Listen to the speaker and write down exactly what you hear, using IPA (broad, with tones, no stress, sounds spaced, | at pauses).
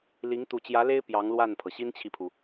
l i˧˥ ŋ t̪ u˨˩ t͡ɕ j ä˧˥ l e˥ ɪ̯ p j ɑ˧˥ ŋ l w a˥˩ n pʰ ɤ˩ ɕ i˥ n t͡ɕʰ i˨ pʰ u˩